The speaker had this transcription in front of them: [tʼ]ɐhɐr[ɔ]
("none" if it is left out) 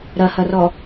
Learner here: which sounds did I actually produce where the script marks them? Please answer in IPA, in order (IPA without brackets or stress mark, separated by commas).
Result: ɾ, ɔ